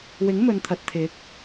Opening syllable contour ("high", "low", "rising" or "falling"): rising